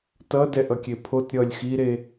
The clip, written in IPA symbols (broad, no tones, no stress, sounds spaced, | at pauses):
t ʌ d ɛ ʔ ʌ kʲ e pʰ o t ɾʲ ʌ lʲ x i ɾ e